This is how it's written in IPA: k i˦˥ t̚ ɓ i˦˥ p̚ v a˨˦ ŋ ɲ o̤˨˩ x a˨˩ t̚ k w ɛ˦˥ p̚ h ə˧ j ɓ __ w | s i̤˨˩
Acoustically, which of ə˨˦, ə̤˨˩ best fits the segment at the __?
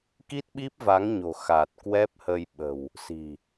ə̤˨˩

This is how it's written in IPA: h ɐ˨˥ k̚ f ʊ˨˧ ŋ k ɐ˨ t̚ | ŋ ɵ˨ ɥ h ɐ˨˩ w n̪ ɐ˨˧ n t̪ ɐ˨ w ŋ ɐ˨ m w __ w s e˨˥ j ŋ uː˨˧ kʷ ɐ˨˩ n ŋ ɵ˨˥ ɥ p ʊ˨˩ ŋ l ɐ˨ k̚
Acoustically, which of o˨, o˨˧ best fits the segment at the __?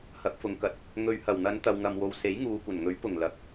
o˨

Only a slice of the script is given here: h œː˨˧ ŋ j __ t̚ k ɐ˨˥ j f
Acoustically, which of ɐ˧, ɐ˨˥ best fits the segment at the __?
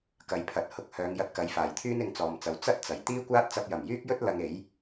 ɐ˧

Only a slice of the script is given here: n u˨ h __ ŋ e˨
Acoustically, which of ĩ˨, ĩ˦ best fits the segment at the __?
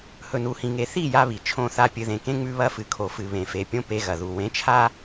ĩ˨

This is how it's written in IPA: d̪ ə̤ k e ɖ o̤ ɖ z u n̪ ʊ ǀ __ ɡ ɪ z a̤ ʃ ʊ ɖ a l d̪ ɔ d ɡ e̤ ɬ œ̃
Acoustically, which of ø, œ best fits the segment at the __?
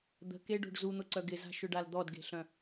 œ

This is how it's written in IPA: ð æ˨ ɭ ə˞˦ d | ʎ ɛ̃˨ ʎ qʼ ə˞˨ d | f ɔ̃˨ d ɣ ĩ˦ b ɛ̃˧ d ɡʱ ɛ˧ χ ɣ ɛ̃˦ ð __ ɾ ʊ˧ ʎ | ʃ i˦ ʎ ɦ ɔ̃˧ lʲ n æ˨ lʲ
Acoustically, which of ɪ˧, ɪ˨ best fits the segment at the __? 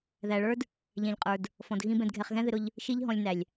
ɪ˧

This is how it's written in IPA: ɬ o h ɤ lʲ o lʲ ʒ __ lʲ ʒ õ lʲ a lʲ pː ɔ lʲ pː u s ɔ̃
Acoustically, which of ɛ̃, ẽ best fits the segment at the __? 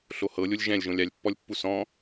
ɛ̃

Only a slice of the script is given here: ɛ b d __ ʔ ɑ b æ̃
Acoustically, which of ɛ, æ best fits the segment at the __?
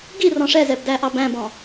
æ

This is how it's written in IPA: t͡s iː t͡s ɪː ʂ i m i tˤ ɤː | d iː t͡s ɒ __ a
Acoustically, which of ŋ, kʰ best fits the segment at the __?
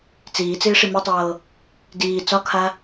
kʰ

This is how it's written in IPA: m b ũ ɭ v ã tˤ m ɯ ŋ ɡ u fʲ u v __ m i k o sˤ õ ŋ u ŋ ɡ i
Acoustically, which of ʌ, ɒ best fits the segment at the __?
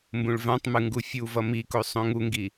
ʌ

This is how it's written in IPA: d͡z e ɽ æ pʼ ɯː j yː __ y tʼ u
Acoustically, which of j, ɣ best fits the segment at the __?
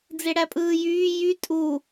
j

